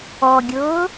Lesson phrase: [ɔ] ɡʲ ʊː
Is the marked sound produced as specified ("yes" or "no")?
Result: yes